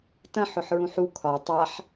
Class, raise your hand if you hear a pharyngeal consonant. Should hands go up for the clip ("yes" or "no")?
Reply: yes